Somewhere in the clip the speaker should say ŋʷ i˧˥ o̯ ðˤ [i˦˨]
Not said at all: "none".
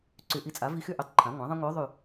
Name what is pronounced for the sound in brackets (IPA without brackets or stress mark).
y˦˨